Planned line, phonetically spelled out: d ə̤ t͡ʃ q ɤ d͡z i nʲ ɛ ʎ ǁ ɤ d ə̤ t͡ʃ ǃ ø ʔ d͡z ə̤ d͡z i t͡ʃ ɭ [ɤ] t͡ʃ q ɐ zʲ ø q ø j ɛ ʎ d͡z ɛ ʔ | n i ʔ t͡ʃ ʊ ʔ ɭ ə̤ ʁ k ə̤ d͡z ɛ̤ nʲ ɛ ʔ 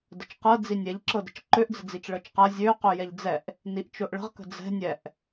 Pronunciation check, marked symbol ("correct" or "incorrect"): correct